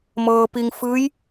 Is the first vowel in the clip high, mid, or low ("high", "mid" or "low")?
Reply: mid